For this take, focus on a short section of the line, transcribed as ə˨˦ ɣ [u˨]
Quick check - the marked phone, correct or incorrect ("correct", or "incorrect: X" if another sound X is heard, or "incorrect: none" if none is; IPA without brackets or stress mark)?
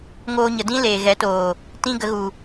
correct